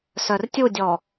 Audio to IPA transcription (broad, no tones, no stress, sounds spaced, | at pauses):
s œ r tʲ u dʲ ɔ